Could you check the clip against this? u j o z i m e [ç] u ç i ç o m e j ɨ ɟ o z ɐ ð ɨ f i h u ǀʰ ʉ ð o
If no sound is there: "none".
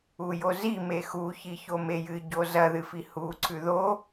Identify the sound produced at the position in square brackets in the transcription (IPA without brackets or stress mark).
x